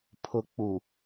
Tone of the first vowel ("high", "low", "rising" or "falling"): low